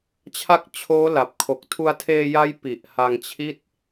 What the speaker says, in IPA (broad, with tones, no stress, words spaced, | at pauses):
t͡ɕʰa˦˥k̚t͡ɕʰoː˦˥la˨˩p̚kʰo˨˩k̚ tʰu˧a̯tʰeː˧ja˦˥j pi˨˩ʔha˧ŋt͡ɕʰi˥˩t̚